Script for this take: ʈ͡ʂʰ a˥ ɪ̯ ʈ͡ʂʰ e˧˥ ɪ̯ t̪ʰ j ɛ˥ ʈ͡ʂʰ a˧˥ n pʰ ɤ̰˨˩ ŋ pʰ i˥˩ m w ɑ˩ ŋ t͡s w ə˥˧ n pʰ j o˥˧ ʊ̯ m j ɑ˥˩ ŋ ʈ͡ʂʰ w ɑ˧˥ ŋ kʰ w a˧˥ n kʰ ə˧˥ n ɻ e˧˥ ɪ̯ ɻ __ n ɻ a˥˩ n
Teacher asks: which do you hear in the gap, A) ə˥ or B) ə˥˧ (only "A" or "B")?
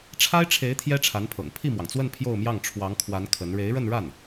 B